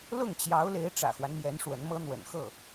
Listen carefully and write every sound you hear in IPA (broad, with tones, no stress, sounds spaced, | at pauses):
l ʊ˥˩ ŋ t͡ɕ j ɑ˧˥ ʊ̯ l e˧˥ ɪ̯ ʈ͡ʂ ä̰˨˩ x w a˦ n m j ɛ˧˥ n ʂ w ə˧˥ n m ɤ˥ n̪ w ə̰˨˩ n x ɤ˥˩